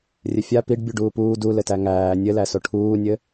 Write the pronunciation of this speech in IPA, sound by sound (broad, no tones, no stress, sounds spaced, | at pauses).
rʲ ɘ fʲ a p i ɖ bʲ u ɖ uː p uː d u l ɘ t æ ŋ æː nʲ ɘ l æ s o ʈʰ uː nʲ ɘ